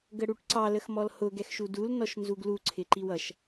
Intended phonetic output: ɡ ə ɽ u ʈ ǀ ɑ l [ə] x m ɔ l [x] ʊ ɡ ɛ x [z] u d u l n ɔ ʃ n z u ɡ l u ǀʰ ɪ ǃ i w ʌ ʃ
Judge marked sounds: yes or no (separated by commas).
yes, no, no